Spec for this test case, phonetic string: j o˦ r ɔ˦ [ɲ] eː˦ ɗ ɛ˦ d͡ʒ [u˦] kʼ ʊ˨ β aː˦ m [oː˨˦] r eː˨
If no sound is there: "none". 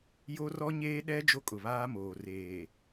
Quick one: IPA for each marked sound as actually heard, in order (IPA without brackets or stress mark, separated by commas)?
ɲ, o˦, oː˨